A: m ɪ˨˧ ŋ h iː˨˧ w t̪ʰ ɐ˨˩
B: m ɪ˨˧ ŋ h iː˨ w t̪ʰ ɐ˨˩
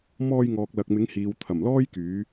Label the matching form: B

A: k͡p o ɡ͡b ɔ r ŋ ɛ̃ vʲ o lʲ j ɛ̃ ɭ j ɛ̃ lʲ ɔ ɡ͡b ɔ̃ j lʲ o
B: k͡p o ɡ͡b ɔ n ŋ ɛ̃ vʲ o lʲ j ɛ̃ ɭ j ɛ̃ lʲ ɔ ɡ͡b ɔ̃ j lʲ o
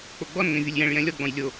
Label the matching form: B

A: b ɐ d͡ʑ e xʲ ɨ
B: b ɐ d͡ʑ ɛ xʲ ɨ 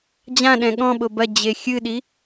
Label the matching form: A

